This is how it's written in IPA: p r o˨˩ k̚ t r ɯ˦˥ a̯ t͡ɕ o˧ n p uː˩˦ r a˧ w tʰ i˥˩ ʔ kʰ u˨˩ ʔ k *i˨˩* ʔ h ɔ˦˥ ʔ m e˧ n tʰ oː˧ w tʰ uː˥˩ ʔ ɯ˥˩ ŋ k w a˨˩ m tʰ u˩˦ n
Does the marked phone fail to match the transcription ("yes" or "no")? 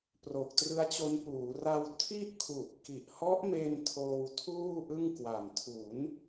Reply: no